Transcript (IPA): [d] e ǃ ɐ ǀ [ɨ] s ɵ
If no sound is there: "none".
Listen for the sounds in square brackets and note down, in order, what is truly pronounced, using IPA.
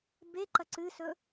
b, ɨ

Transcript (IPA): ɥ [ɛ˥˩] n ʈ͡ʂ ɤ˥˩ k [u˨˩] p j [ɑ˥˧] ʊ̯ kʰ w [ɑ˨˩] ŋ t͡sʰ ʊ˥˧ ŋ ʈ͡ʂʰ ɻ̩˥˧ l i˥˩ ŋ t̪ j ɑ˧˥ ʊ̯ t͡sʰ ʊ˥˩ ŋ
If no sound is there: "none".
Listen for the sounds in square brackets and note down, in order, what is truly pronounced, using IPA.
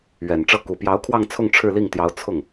ɛ˨˩, u˨˩, ɑ˧˥, ɑ˥˧

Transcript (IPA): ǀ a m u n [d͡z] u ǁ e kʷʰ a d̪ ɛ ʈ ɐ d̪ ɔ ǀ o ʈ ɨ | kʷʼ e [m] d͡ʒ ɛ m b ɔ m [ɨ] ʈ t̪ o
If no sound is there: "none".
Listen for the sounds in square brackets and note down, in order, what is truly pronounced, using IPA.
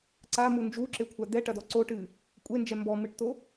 d͡ʒ, n, ɨ

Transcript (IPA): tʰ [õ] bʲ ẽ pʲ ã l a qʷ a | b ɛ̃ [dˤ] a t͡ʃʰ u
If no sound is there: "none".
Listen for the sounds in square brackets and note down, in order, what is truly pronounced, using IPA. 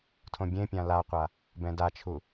õ, d

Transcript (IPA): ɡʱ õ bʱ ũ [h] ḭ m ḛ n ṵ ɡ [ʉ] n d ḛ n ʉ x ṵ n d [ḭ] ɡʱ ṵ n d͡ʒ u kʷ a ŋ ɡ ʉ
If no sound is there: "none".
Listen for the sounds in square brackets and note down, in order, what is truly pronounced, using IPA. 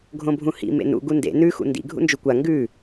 h, u, ḭ

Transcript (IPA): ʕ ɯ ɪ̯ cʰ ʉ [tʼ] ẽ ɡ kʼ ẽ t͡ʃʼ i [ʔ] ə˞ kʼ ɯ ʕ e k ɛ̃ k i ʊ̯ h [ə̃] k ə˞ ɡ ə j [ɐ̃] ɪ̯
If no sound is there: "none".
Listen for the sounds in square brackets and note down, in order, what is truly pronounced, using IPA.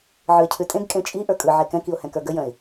tʼ, ʔ, ɛ̃, ə̃

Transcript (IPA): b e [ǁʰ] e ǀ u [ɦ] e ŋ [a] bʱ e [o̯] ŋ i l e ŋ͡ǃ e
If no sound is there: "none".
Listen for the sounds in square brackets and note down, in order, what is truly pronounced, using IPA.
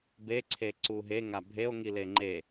ǀʰ, ɦ, a, o̯

